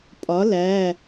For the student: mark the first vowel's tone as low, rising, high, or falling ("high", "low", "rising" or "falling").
rising